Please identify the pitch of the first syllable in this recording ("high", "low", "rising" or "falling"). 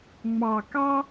low